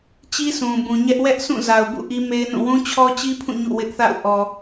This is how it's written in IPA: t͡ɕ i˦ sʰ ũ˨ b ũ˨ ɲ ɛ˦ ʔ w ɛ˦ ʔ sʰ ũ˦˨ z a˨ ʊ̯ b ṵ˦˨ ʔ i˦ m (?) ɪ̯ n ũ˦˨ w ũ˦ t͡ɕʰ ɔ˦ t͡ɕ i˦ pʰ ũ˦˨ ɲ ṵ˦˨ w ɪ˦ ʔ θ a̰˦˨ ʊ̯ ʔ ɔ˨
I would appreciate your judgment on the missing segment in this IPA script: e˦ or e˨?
e˦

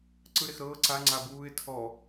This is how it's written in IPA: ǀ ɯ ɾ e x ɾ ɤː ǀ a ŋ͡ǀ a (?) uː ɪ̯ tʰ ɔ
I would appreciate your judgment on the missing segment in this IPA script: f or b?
b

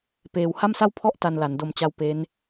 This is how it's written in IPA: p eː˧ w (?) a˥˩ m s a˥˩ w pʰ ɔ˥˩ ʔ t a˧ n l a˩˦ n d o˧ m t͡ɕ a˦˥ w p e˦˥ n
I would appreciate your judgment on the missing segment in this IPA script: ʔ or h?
h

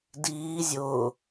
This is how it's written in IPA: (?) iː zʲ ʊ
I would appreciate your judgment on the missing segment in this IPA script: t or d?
d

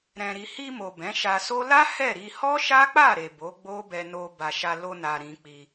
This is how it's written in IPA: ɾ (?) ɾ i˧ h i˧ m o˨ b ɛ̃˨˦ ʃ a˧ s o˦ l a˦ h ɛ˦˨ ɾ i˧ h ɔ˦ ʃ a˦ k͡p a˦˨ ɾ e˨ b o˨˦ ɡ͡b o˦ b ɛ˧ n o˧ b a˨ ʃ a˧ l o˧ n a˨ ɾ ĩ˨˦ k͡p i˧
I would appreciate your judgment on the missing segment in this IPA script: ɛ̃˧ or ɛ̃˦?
ɛ̃˧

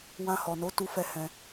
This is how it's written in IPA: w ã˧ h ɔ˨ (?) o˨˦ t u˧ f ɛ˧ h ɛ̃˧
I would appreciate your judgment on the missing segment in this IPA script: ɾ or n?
n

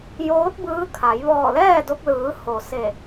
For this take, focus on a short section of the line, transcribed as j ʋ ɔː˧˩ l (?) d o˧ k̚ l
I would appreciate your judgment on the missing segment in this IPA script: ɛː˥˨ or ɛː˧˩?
ɛː˥˨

